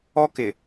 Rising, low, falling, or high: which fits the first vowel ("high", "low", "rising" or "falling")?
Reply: high